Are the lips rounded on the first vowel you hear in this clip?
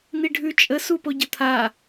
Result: no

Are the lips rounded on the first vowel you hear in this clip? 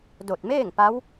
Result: yes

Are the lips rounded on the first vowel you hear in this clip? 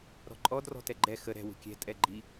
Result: yes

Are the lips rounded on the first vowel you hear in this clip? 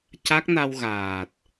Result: no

